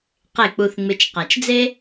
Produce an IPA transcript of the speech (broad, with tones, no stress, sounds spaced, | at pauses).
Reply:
q e˥˩ k͡p u˧ θ ŋ͡m ɪ˧ t͡ʃ q a˩ t͡ʃ d͡z e˥